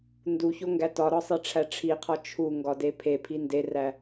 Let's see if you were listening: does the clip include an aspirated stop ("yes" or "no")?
yes